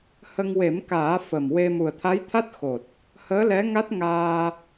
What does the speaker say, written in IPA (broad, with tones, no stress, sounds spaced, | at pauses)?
h ə˧ ŋ w e˨˩˦ m k aː˨˩˦ f ə˨˩ m w e˧ m u˨˩ ə̯ t̪ʰ a˧˥ j t̪ʰ a˦˥ t̚ x o˨˩ t̚ | h əː˧˥ l ɛ˧˥ ŋ a˦˥ t̚ ŋ aː˧